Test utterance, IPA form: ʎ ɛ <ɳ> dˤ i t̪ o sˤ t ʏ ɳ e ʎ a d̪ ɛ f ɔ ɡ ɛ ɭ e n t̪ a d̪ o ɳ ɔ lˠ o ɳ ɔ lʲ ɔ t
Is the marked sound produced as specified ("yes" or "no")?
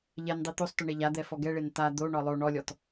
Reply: no